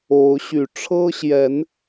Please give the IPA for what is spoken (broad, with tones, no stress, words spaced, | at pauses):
o˨˦ʊ̯ɕy˨˩ ʈ͡ʂʰɤ˦ɕjɛ˨˦n